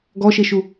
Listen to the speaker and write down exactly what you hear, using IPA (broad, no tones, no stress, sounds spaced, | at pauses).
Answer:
ɡ ɔ ʃ e ʃ u